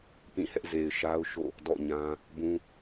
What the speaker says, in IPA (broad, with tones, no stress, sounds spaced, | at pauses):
p ĩ˦˨ h ɛ˦ ʔ z e˨ ɪ̯ ʃ a˦ ʊ̯ ʃ o̰˦˨ | d ɔ̰˦˨ ɲ ã˦ | b ũ˦